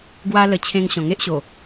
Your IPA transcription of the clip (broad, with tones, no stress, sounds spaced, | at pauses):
ɡ w a˦ l ə˧ t͡ɕʰ ẽ˧ ŋ ɕ ɔ̃˨˩ ŋ e˦ ʔ ɕ o˨˩